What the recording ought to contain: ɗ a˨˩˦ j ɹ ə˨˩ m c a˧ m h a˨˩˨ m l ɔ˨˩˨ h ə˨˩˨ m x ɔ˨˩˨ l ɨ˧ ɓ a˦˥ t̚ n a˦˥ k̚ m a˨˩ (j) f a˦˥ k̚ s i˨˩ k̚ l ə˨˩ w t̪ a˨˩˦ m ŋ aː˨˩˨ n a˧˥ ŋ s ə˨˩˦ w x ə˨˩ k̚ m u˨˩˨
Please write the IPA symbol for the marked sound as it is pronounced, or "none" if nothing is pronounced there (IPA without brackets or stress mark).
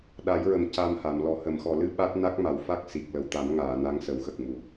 w